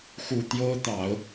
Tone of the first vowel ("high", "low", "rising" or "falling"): low